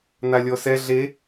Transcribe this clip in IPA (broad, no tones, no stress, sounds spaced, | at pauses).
n̪ a lʲ ɔ s ɛ ɮ e